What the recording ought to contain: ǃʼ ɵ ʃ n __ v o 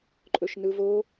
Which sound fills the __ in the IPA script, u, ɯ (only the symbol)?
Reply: ɯ